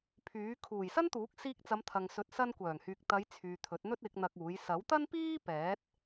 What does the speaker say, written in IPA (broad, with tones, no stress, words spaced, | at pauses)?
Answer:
pʰyː˨˥ kʰuː˨˩jsɐ˥nt̪uː˨˥k̚ siː˧k̚t͡sɐ˨˧mt̪ʰɐ˨ŋsɵ˨˥t̚ sɐ˧nkʷœː˨˩ŋhyː˨k̚ t̪ɐ˨˧j t͡sʰyː˨t̪ʰɵ˨˥t̚n̪ɵ˥t̚ɪ˨˥k̚ n̪ɐ˧k̚uː˨˥j sɐ˨˥wt̪ɐ˥npiː˥ pɛː˨˥t̚